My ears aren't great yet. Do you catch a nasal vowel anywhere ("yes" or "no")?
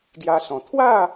yes